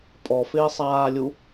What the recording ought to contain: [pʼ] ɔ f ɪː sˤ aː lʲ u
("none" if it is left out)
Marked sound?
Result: pʼ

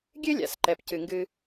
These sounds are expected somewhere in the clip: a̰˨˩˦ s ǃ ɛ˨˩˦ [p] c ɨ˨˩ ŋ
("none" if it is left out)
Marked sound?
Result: p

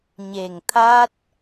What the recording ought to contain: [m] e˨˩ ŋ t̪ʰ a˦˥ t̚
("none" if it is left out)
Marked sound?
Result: ɲ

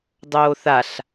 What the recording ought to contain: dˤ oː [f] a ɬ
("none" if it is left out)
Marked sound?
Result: θ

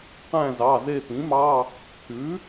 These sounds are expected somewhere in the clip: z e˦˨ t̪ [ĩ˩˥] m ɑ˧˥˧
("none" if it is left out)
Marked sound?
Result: ĩ˩˥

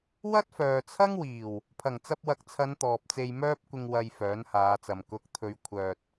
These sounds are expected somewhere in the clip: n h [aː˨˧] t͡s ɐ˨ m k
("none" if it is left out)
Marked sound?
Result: aː˨˧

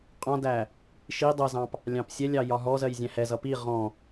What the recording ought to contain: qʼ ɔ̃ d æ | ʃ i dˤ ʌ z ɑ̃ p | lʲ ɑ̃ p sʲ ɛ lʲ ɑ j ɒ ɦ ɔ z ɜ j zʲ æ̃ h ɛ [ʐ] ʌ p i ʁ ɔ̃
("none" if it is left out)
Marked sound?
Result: z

